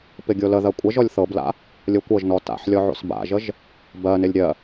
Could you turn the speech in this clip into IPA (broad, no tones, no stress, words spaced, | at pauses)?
pɪɡʲoləðɜ kʷʼəʒɔlʲ θɤbla̰ | lʲokʷɤʒnɔ ta̰ħlʲɔ ʕo̰sba̰ʒəʒ | bɜnɪlʲ ɾʲɜ